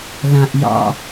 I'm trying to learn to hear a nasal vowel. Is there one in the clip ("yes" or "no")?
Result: yes